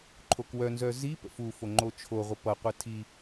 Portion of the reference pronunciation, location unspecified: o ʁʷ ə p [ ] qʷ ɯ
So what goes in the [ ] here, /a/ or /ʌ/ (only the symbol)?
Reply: ʌ